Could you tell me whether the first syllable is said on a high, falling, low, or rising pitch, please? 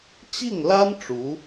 falling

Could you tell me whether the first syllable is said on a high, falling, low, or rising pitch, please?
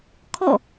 falling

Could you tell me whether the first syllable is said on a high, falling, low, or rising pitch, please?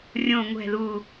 low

